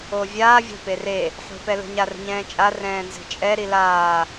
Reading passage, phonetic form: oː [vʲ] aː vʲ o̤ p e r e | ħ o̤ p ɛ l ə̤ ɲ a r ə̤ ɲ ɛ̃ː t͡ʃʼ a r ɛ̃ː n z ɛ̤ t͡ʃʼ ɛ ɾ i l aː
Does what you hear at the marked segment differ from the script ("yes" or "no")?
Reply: no